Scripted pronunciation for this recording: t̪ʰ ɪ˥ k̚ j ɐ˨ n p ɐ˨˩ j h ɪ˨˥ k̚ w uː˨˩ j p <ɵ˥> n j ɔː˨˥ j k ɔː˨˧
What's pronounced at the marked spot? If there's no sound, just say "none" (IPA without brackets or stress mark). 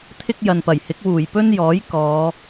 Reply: ɵ˥